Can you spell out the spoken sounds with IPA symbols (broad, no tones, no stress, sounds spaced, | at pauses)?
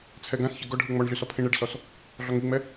t͡sʰ ɛ ɡ ã s ç ɪ ɡ ɔ ɖʱ ɯ ŋ͡m ɔ ɳ ɮ y s ɔ pʰ ĩ ɳ ɛ ɖ s ɔ s | ɮ ɔ ŋ i ŋ͡m ɛ